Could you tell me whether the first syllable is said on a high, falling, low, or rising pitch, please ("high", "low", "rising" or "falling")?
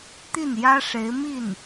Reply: falling